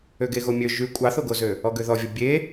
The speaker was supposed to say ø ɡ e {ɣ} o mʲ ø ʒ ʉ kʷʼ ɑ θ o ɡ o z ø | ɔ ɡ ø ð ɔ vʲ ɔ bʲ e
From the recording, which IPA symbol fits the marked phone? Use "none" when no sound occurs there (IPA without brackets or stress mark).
ɣ